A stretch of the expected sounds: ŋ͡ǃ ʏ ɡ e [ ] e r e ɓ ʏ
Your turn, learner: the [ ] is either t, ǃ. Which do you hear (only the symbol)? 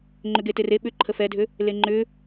t